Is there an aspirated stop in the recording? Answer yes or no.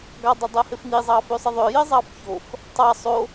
no